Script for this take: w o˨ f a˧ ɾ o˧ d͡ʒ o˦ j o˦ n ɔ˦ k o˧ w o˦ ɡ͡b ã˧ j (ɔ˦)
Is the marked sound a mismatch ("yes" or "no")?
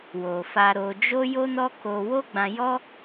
no